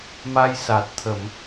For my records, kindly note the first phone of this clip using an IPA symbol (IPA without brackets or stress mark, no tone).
m